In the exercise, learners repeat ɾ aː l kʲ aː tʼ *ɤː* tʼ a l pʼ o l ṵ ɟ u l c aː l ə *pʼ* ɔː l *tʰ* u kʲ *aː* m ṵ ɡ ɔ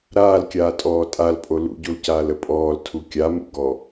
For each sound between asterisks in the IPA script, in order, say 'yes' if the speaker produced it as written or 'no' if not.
no, yes, yes, no

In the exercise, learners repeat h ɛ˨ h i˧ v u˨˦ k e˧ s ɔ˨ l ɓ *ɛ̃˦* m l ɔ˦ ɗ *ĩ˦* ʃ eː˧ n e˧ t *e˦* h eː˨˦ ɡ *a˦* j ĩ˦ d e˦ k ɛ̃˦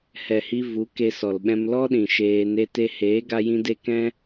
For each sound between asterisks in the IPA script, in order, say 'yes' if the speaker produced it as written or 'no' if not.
no, no, no, yes

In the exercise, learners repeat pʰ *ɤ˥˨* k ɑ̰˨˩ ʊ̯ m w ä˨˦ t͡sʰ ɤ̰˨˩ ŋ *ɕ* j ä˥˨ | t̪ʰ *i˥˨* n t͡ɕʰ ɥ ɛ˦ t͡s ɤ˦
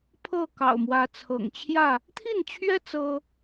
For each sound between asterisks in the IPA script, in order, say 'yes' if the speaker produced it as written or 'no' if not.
yes, no, yes

